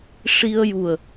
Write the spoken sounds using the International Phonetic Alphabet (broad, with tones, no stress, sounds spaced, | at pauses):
ʂ i˧ ə̯ j u˨˩ ə̯